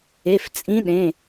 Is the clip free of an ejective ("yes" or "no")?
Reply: no